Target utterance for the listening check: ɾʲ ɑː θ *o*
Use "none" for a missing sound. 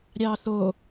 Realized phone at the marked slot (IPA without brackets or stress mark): o